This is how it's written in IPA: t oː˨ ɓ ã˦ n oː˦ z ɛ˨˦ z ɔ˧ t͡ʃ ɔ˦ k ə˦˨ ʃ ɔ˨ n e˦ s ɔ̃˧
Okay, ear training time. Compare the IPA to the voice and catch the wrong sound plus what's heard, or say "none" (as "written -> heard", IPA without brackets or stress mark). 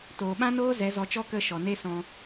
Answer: none